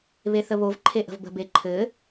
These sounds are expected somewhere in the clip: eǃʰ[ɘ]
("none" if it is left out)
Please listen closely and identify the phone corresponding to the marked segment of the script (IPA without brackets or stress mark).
ɘ